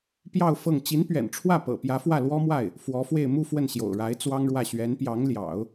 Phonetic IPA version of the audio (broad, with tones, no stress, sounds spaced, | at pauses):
p j ɑ˥˧ ʊ̯ f ɤ˥˩ ŋ t͡ɕ i˧˥ n p ɥ ɛ̰˨˩ n ʈ͡ʂʰ w ä˥˩ p ɤ̰˨˩ p j ä˧˥ f w ä˥˩ l w ɔ˥ m w a˥˩ ɪ̯ | f w ɔ˧˥ f w e˥˧ ɪ̯ m u˥˧ f w ə˥˩ n ɕ j o̰˨˩ ʊ̯ ɻ a˧˥ ɪ̯ t͡s w ɑ˥ ŋ ɻ w ä˥˩ ɕ ɥ ɛ˧˥ n p j ɑ˧˥ ŋ l j ɑ̰˨˩˦ ʊ̯